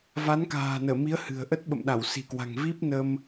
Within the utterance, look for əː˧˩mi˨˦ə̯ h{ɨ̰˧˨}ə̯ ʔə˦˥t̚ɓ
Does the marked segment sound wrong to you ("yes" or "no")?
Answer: yes